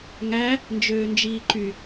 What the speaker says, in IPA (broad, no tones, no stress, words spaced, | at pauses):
ŋæ | nd͡ʒøːnd͡ʒiːǃy